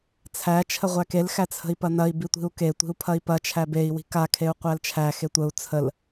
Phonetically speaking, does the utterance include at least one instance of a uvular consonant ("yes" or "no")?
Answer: yes